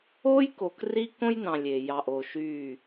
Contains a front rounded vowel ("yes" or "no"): yes